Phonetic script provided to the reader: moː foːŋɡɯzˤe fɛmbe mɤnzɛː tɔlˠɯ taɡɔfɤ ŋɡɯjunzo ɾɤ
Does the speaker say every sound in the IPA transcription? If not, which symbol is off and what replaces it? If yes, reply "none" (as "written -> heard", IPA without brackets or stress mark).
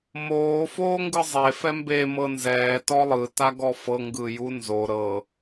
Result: none